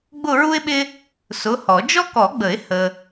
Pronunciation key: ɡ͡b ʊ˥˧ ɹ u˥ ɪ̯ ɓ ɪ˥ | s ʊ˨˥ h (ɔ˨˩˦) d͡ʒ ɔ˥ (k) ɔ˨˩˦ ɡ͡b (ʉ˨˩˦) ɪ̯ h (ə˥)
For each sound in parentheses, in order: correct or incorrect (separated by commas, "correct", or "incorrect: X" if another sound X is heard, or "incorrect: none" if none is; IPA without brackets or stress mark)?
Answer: correct, correct, incorrect: ə˨˩˦, incorrect: ə˨